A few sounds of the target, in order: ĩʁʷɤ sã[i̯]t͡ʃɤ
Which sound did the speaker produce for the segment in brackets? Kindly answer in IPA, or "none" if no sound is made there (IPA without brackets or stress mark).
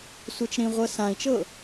i̯